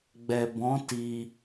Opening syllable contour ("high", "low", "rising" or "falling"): low